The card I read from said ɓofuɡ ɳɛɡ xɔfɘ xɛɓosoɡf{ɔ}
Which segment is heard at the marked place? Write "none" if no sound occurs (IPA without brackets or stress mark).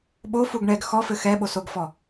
ɔ